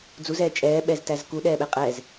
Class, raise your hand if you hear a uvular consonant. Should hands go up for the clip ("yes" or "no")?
yes